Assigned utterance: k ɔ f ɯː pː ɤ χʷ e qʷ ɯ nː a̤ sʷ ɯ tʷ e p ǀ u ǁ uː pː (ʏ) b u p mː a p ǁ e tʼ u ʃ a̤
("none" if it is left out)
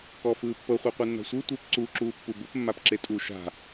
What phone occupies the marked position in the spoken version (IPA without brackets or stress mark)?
u